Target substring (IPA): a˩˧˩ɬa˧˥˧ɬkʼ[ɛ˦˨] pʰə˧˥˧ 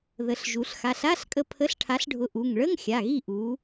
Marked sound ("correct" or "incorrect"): incorrect